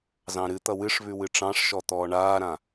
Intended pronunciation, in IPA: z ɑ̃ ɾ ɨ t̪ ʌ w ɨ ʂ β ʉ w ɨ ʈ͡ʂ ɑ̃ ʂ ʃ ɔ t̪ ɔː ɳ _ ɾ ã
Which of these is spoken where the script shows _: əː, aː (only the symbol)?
aː